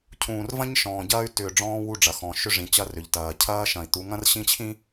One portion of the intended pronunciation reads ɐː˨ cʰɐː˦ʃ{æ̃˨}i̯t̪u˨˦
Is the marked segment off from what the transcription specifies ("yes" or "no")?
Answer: yes